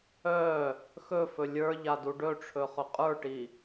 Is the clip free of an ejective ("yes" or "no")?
no